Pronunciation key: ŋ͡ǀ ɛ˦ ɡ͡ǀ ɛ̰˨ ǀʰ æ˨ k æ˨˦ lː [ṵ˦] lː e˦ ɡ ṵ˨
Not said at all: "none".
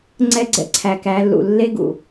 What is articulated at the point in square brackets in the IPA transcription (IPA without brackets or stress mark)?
ṵ˨